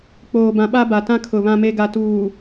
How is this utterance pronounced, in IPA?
k͡p oː˨ b ã˨ ɓ a˦ b a˨ t ã˦ kʰ ʊ˨ β ã˨ m e˨ ɡ a˨ t uː˨

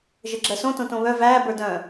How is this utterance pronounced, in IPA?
ʒ ə ɡ͡ǁ ɜ s õ t õ t õ β œ v æː b ə˞ d œ̃

